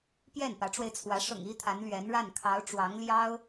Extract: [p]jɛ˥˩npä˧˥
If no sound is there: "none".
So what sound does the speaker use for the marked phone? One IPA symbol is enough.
p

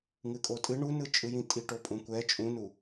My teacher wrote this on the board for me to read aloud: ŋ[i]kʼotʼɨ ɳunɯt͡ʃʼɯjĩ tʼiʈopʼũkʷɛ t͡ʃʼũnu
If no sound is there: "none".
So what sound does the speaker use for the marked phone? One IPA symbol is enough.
ɨ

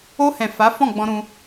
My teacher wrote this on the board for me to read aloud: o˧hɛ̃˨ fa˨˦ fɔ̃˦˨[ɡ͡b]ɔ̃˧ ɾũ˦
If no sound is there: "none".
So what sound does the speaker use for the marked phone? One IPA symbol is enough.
ɡ͡b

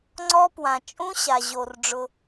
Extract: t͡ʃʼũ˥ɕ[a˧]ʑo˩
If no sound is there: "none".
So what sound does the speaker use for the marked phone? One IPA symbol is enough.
a˩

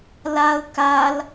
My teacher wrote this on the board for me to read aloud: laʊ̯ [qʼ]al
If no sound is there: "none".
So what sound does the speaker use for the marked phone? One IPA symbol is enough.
k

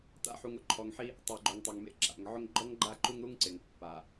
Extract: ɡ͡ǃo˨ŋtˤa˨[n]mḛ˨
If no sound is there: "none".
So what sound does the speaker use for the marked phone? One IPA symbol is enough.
ŋ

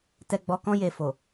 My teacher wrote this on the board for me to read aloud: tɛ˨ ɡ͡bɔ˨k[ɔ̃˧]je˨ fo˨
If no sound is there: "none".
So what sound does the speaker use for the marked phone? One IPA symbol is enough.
ɔ̃˧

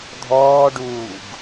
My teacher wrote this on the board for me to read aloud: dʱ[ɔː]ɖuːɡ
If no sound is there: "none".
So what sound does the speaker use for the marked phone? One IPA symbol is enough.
ɔː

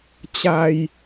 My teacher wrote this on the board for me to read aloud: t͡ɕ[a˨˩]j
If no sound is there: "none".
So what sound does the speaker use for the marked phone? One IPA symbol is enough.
a˧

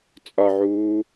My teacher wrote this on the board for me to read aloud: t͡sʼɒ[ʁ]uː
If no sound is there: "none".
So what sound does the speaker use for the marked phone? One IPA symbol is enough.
ʕ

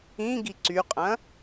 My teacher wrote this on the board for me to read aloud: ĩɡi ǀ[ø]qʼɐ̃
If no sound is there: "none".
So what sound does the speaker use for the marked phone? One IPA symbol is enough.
y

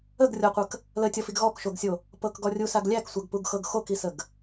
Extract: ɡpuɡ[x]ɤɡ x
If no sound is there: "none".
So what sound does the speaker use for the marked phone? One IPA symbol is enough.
x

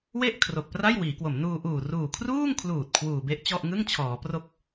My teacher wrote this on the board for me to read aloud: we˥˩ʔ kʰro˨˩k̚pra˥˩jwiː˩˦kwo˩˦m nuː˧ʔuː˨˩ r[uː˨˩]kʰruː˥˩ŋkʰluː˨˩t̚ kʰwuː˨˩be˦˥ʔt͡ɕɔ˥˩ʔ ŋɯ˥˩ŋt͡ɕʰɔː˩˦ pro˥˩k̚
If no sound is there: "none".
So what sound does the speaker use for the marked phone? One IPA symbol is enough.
uː˨˩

